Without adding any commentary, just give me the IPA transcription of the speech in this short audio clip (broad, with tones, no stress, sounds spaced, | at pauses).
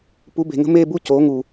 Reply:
p u˨˥ b e̤˨ ŋ ə̤˥˧ m eː˥˧ b u˥˧ c oː˨˥ ŋ u˨